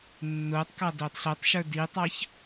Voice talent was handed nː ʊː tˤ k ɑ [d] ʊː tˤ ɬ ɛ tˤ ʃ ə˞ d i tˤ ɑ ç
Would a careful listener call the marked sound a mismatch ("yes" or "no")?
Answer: no